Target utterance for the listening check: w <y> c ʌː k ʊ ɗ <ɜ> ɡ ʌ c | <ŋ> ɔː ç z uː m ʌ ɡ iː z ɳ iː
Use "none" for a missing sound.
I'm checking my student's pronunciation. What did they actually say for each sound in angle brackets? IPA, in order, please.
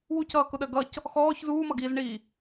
u, ɜ, x

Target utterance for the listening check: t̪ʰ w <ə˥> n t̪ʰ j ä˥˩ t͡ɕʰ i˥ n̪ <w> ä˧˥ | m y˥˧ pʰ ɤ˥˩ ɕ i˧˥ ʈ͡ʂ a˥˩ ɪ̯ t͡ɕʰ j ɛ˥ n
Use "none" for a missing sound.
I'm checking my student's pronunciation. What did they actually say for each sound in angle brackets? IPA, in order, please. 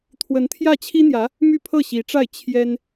ə˧˥, j

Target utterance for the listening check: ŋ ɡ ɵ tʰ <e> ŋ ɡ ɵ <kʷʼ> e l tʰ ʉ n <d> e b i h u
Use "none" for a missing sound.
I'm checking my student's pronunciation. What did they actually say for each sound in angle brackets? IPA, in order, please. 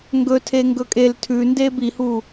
e, kʼ, d

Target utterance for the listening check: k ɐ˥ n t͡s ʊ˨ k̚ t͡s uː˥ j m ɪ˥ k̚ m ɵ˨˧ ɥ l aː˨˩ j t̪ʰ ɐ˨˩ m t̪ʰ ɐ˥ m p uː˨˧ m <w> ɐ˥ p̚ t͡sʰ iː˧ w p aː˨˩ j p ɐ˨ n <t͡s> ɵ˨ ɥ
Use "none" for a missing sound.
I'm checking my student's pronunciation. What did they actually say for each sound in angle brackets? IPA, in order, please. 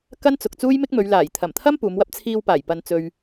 w, t͡s

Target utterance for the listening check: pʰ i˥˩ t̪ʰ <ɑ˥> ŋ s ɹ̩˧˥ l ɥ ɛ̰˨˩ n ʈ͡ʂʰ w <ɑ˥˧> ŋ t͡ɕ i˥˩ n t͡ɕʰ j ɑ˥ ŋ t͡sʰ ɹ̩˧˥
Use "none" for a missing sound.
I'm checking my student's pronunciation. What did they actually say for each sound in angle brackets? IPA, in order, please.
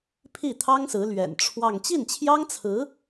ɑ˥, ɑ˥˧

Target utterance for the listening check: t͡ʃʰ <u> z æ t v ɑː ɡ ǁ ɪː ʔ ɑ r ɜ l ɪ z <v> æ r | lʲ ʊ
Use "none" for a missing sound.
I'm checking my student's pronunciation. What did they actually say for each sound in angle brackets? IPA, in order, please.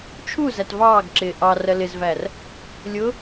u, v

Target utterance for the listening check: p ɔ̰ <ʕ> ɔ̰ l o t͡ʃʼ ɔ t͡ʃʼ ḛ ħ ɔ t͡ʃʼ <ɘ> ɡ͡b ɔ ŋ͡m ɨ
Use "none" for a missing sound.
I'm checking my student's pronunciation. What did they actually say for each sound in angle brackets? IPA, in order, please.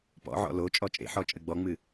ʕ, ɘ

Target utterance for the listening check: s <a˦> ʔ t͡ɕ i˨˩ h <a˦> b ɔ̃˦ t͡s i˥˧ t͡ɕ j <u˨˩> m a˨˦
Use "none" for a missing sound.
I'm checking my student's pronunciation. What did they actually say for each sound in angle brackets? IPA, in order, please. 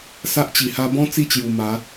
a˦, a˦, u˨˩

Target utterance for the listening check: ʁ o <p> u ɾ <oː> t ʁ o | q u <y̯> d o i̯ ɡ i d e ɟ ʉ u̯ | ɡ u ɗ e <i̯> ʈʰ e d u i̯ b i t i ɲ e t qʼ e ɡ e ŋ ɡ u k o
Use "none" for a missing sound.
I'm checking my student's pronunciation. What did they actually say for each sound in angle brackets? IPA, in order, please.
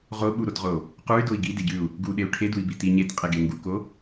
ɓ, o, y̯, u̯

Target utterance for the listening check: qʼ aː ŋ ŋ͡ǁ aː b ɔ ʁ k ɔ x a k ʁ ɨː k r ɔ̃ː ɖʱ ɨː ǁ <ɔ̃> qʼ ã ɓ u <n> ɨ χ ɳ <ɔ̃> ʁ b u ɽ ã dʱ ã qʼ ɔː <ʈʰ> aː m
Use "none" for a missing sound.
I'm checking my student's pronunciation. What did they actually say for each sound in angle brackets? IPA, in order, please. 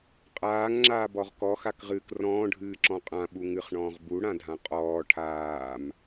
ɔ̃, ŋ, ɔ̃ː, ʈʰ

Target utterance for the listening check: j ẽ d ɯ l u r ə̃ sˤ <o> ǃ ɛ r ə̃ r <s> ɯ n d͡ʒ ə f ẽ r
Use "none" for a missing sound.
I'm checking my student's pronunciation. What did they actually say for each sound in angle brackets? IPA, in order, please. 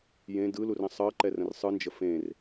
ɤ, sˤ

